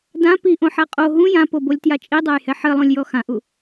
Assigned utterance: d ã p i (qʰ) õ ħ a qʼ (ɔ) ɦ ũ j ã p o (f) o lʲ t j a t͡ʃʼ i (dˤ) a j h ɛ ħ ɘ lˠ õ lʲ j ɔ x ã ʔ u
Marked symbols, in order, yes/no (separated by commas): no, no, no, yes